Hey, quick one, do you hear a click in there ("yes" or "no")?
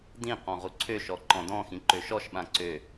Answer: yes